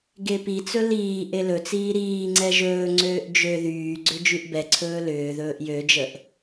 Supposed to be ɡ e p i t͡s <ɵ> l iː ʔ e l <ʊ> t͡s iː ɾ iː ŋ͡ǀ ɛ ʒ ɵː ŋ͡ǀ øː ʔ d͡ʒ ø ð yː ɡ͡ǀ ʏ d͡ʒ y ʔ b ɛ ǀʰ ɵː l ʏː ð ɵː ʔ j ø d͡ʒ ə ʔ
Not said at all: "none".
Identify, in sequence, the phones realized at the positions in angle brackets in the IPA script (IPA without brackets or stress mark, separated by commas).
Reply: ɵ, ɵ